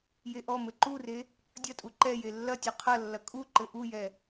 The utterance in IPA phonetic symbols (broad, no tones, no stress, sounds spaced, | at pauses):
j e ʔ ɔ m ɘ ǃ u r e | dʲ ɐ tʼ u ǃ ɛ j e lː ɐ tʲ ɔ qʰ ɐ lː ɐ kʼ u ǃ ɘ ʔ u j ɛ